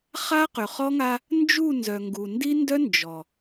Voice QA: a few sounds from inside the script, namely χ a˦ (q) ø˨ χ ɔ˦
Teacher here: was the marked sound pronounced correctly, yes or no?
yes